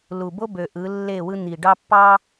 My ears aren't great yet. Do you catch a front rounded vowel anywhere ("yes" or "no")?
yes